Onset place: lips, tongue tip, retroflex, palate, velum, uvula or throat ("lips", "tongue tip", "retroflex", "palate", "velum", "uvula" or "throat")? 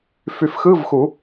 lips